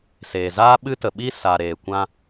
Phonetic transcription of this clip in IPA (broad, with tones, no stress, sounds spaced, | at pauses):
s eː˨ z aː˦ ɓ ɨ˦ t ə˨ ɓ i˦ s a˨ ɾ eː˨ kʷ ã˧